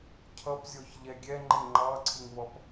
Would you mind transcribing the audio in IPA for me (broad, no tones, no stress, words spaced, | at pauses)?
cʰʌpzʲɔç ʎɛɡʲɛ ŋ͡ǃɪ ŋ͡ǃɑǀʰɪŋvʌp